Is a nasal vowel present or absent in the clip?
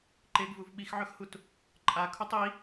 absent